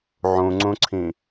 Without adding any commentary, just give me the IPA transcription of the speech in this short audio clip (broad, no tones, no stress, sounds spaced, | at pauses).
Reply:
ʕ ũ ŋ͡ǀ ũ ǀʰ ĩ